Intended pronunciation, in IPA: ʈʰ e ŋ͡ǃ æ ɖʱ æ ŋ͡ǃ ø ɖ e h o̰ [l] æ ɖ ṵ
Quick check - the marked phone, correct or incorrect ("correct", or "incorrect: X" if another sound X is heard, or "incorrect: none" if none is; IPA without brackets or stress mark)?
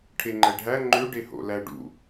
correct